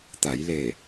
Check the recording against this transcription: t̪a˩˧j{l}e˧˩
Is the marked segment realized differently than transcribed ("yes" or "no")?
no